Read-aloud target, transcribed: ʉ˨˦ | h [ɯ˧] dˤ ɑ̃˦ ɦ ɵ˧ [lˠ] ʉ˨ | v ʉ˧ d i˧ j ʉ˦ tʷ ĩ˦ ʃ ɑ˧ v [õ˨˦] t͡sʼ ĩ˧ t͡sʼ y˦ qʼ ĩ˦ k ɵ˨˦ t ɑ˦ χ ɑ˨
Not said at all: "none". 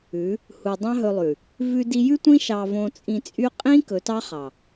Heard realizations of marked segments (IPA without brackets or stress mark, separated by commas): u˧, lˠ, õ˧